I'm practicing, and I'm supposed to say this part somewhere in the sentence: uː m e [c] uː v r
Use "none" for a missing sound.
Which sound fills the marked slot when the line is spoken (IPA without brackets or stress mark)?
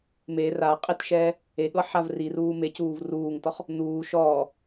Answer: c